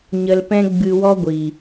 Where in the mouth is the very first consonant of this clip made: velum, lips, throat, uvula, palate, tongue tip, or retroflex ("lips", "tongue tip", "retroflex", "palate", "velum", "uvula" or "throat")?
palate